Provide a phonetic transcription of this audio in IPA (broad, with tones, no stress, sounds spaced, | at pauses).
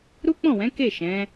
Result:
ɾ u˦ k͡p ɔ̃˦˨ w ɛ̃˨˦ k e˦˨ ʃ ɛ̃˨˦